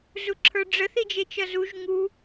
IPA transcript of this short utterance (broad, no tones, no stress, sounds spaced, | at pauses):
z u ǁʰ ə˞ ɖ͡ʐ ə θ i d͡ʒ e t͡ʃ ʌ z u ʒ ŋ u